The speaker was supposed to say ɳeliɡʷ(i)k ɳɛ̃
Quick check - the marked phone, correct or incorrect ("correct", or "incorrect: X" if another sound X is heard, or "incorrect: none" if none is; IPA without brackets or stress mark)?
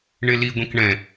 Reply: incorrect: ĩ